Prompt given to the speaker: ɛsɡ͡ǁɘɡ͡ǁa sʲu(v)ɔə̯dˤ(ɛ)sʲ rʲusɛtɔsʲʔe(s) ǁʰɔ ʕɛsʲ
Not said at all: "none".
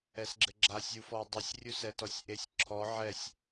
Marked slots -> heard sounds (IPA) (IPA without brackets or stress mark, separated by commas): f, ɘ, sʲ